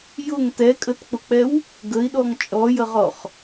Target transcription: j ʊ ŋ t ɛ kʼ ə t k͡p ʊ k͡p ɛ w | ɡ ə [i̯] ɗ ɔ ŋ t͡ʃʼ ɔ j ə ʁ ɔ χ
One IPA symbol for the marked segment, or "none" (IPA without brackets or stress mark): i̯